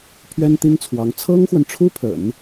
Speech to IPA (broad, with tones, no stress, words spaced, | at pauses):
pʰɥɛ˥nt̪i˥ŋt͡sʰwɑ˧˥ŋ t͡sʰɤ˥ŋxwə˨nʈ͡ʂʰu˥pʰə̰˨˩˦n